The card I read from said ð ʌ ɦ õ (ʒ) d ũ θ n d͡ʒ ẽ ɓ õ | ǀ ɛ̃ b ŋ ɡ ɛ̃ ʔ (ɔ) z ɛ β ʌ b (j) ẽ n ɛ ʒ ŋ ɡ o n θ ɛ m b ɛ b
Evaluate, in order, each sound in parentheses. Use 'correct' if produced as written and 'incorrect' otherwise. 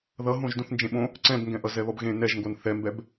correct, incorrect, incorrect

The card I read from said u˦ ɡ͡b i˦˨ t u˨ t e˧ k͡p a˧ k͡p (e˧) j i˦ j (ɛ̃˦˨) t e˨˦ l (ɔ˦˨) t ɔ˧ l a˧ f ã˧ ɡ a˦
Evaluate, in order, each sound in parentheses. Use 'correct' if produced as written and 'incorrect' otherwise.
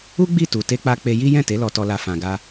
correct, correct, incorrect

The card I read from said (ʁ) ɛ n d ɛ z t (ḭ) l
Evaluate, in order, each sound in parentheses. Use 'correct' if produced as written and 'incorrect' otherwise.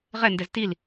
correct, incorrect

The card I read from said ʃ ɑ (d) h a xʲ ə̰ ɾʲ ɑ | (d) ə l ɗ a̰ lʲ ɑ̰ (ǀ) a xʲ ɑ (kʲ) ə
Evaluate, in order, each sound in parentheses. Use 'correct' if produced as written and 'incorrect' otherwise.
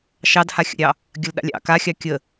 correct, incorrect, incorrect, correct

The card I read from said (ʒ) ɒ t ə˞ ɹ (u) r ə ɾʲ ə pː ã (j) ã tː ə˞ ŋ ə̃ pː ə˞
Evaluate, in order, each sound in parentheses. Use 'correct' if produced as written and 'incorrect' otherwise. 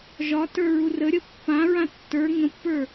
correct, correct, incorrect

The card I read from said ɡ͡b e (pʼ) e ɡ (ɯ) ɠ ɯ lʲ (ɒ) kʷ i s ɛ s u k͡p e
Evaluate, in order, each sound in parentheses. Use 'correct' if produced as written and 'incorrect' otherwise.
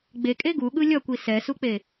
incorrect, incorrect, incorrect

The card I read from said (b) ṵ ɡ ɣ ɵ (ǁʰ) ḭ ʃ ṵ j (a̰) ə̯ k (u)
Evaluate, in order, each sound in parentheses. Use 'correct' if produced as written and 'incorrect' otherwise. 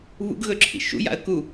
incorrect, correct, correct, correct

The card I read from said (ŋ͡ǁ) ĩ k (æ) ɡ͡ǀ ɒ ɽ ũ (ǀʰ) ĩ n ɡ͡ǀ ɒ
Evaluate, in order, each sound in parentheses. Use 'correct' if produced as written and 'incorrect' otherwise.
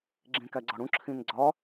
incorrect, correct, incorrect

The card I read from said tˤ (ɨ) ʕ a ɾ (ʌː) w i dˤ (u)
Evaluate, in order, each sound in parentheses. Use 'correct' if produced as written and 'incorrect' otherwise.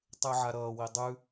incorrect, correct, incorrect

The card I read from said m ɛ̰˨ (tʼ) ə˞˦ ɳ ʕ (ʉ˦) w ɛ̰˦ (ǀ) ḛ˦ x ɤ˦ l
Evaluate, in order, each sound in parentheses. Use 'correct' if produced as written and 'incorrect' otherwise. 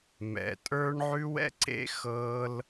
correct, correct, correct

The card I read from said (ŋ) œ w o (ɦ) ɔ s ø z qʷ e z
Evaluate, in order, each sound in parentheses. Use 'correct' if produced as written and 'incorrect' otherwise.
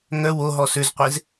correct, correct

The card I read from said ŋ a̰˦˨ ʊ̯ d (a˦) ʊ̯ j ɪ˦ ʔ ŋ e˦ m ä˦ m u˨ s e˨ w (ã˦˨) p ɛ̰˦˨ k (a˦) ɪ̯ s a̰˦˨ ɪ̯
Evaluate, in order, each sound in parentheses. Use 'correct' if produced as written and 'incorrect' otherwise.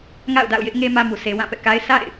incorrect, correct, correct

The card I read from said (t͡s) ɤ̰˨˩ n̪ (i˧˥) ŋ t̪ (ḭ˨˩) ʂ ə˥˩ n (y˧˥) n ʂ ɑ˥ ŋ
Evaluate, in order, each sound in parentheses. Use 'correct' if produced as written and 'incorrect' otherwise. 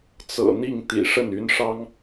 correct, incorrect, correct, correct

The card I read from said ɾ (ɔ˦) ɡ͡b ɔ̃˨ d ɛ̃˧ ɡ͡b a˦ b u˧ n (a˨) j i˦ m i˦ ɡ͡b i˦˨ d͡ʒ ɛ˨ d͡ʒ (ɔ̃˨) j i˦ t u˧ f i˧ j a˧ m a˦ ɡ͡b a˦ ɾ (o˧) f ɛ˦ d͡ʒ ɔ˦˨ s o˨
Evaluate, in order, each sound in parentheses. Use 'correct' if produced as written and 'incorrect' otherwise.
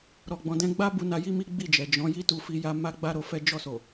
incorrect, incorrect, incorrect, correct

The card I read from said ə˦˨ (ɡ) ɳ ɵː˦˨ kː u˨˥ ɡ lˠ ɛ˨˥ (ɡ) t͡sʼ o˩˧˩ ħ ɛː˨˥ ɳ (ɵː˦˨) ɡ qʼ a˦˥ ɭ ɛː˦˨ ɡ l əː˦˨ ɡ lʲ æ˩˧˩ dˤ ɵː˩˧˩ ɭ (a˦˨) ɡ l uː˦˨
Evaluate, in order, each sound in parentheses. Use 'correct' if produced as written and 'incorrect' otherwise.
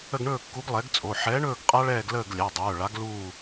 correct, correct, correct, incorrect

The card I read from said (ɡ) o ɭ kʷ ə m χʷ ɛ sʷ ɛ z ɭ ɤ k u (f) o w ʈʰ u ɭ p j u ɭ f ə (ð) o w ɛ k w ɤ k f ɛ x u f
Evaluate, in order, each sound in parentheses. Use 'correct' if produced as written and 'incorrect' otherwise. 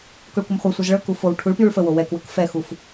incorrect, correct, incorrect

